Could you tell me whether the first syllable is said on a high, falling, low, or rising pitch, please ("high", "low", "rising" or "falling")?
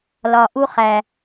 low